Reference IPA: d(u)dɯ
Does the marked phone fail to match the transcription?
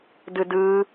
yes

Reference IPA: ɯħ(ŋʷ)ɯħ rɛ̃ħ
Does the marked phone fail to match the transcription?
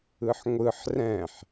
no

